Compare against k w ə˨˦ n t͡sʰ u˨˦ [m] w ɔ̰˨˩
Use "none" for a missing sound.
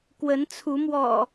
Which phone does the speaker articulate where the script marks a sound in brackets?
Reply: m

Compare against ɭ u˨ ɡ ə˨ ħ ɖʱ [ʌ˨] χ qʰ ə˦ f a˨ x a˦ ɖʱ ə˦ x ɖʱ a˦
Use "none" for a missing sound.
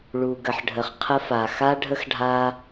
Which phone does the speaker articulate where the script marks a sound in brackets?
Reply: ə˨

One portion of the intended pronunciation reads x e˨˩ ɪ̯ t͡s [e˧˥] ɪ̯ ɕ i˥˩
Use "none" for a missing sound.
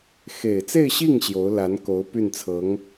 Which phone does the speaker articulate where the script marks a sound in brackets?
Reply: e˥˧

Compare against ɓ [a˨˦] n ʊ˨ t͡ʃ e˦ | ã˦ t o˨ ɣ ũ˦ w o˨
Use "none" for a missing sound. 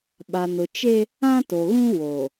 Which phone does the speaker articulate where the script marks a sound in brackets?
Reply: a˨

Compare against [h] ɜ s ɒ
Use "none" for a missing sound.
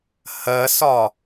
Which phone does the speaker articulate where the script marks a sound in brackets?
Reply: h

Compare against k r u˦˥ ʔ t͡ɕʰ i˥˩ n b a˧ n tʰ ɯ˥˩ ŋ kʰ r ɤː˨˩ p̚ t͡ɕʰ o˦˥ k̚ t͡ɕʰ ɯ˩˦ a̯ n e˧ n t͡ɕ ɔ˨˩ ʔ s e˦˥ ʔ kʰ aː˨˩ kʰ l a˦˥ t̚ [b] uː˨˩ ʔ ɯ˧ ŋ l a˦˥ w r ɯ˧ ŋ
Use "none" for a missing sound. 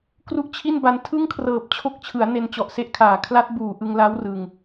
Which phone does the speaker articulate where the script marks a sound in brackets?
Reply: b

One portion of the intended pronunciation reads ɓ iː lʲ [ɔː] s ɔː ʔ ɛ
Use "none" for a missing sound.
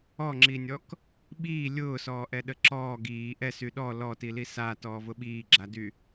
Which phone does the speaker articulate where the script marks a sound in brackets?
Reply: ʊː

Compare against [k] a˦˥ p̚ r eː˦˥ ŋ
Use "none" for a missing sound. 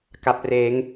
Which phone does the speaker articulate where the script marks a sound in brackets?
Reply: k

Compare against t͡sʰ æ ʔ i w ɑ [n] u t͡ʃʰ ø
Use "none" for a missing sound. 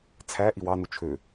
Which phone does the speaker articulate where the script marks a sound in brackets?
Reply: n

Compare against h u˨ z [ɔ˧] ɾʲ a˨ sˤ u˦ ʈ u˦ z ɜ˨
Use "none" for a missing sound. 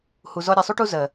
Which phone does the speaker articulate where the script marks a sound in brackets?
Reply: ɔ˧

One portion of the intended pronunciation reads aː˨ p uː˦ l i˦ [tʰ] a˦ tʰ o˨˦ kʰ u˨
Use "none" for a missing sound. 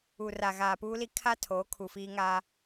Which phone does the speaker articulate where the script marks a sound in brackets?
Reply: kʰ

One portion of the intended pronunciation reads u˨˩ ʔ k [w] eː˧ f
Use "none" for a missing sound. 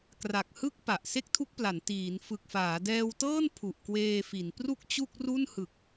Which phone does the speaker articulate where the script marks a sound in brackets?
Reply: w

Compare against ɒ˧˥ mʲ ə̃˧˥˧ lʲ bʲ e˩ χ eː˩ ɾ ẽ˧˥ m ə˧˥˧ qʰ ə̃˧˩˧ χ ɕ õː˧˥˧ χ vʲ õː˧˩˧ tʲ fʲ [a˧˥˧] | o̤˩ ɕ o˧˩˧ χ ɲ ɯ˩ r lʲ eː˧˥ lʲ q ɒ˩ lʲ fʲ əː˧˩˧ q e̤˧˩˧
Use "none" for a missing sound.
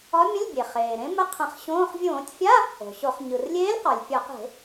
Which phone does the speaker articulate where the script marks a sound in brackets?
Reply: a˧˥˧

